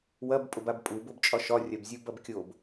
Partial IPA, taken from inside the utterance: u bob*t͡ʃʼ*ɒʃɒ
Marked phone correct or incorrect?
correct